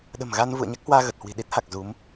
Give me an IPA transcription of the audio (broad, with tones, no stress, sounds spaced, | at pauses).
ɗ ə̤˨˩ m ɣ a˧ n v ṵ˧˨ ə̯ ɲ a˦˥ k̚ h w aː˧ ɣ ə˨˩ t̚ h w i̤˨˩ ɗ i˦˥ t̚ h a˨˩ k̚ z u˨˦ m